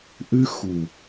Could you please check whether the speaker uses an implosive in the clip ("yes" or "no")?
no